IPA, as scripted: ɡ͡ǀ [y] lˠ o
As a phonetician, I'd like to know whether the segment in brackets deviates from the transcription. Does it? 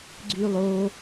no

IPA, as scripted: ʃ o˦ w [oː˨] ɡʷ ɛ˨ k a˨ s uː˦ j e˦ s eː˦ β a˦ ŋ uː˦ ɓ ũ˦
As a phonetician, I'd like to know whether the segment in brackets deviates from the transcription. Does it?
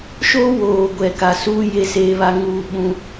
no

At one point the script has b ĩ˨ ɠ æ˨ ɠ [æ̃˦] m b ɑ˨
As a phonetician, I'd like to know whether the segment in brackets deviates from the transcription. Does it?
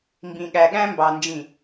no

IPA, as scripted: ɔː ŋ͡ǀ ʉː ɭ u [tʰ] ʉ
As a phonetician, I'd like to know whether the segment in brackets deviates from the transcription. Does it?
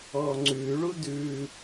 yes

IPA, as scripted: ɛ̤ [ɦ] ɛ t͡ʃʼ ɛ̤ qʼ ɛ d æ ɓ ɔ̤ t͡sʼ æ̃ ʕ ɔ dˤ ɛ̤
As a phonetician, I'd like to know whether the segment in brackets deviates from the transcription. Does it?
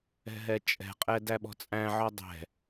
no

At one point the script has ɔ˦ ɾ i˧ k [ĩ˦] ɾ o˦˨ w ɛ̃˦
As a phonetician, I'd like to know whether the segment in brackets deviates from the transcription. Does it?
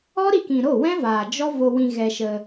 yes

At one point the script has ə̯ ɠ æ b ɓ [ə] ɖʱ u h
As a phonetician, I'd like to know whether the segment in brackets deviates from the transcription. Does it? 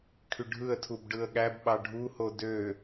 yes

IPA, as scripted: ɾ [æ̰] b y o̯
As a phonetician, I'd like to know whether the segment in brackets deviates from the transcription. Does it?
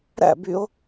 no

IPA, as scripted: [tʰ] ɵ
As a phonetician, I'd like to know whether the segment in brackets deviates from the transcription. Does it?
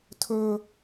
no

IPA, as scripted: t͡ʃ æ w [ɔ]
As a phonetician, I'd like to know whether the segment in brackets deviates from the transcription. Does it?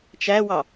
yes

